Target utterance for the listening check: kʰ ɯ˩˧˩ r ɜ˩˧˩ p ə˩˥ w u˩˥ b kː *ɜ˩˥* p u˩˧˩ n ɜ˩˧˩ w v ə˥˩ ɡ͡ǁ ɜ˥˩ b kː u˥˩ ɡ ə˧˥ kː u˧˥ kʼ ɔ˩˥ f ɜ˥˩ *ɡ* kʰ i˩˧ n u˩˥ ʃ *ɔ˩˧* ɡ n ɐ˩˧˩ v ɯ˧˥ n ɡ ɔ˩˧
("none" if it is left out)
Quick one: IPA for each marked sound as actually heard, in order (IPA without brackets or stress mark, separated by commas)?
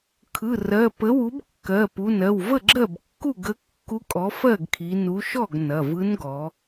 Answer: ɜ˩˧˩, ɡ, ɔ˥˩